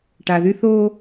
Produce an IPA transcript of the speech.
ʈa˨ðy˦ θoː˦

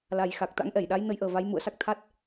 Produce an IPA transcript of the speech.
la˨˩jxa˨˩k̚ t̪a̰˧˥ŋ ʔɛ˧˩jɗa˨˦j nə˨˦jʔəː˨˩ va˨˦j mṵ˧˨ə̯sa˦˥k̚ t̪ʰa˦˥t̚

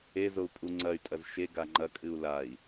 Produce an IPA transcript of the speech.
ezou̯ pʼuŋ͡ǀɐy̯tʼɐz ʃeɡa ŋ͡ǃɐkʼɨu̯ lai̯

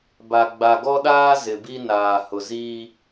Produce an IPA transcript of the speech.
ba˨ ɡ͡ba˨ɡɔ˦ɗaː˦ zɪ˨bi˦ naː˨hʊ˨ziː˦

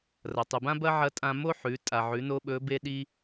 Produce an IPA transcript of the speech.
rɐ˩tˤʉ˩ bã˥ bɐ˥ʕɐ˧˥ tʼã˧mo˥ħʉ˩˧ tʼa˩ʕʉ˩˧no˧ ɓɵ˧˥be˥ɗi˥

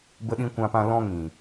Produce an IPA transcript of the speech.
bə˧ɗĩ˧kʷã˧pã˧ lɔ̃˧ŋĩ˨

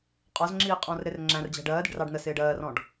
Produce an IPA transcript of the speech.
qʼɒzŋ͡ǁiː qʼɔ̃ːrɾɪrŋ͡ǁæ̃rd͡ʑæ̤ ɖɜːdɪɖ rɑɖnəsɪːɖ ɜːrɔ̃ɖ

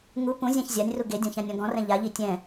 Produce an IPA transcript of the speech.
ŋu pũzʲãç zʲanʲru ɡedʲɔ̃çãnʲɔ̃ ɡɔ̃rɛ̃ ʎaʎi tʲɛ̃

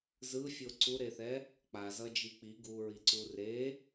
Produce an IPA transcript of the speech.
zɯfʲo ǀuɾeθɛ | k͡pazʌd͡ʒi k͡pi ɡuɹiǀu re

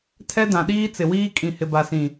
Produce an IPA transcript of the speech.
tʰɛ˦ dã˨ɗiː˦t͡sɪ˨wiː˦ kʼĩ˨hɪ˨ba˨sĩ˨

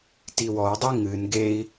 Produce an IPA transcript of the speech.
tiwɔu̯dˤi ŋɨn ɡei̯

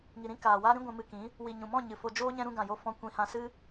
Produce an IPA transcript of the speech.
ŋi˨ɾĩ˦ kaː˨waː˦ɾĩ˦ɡʷɛ̃˧ mɨ˧kĩ˨˦ | wi˨ɲũ˨mɔ̃˦˨ ɲɨ˨fo˧d͡ʒoː˦ ɲɛ̃˧ɾũ˧ɡã˨jo˧ fɔ̃˦ kʷĩ˧hã˧ sɨ˦

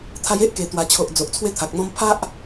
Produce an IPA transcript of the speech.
t̪ʰa˧je˦ʔke˨˩ t̪wa˨˩t͡ɕʰo˨ʔ d͡zo˨ʔt͡sʰwe˥˧t̪ʰa˨k̚n̪ɔ̃˦m pʰa˦ʔ

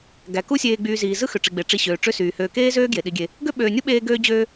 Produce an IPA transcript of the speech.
ɡæ˩ ku˦ sʲeː˨ɡ͡byː˨ziː˩ zɯ˥xø˩ ʈ͡ʂi˩ɡ͡be˩ ʈ͡ʂi˨ɕøː˩ ʈ͡ʂø˦syː˩ høː˨keː˥zøː˥ ɡje˩ɗi˨ɡʲe˨ | ɡø˥ɓøː˨nʲu˥ ɓeː˦ɡøː˦d͡ʑøː˦

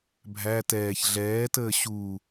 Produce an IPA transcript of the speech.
bʱæ tɛːç ɮɛːtəː ɕu

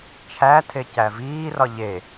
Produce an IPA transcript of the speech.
t͡ʃʰætʰe cæviːrɒ ʎe

